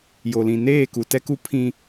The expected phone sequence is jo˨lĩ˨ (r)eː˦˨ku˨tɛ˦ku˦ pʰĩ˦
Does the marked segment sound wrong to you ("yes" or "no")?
yes